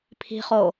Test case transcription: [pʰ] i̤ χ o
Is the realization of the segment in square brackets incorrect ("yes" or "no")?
no